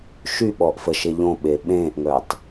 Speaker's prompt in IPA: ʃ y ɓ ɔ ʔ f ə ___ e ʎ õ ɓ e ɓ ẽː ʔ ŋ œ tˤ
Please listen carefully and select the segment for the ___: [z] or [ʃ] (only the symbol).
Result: ʃ